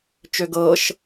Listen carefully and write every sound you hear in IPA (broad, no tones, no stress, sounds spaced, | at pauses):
t͡ʃ ø ɡ ɤ ʃ